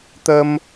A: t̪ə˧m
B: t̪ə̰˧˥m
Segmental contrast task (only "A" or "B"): A